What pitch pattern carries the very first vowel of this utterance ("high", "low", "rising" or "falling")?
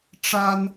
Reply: high